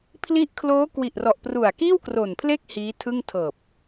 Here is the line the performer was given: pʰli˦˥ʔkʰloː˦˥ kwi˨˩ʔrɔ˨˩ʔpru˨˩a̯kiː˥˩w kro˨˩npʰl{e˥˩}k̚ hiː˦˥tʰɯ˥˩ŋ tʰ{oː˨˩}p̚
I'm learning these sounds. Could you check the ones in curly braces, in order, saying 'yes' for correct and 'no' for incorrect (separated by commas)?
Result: yes, no